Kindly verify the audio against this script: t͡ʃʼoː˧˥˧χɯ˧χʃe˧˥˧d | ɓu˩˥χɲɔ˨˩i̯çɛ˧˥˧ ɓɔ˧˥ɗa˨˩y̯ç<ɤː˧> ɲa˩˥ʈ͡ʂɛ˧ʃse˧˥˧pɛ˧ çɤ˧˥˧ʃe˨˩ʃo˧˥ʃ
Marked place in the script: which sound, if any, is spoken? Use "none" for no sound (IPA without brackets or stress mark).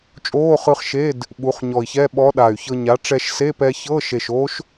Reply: ɤ˧